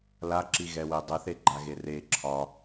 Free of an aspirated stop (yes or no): no